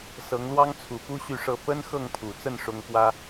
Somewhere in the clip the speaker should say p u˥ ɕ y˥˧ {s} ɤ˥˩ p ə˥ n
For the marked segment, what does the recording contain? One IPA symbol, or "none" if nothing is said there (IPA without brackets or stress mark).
ʂ